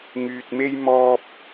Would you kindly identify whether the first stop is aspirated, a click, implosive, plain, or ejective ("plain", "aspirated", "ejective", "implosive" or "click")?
plain